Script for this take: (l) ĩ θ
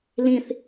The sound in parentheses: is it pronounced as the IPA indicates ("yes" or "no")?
yes